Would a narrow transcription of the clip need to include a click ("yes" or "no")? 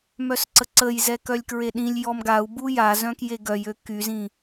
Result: yes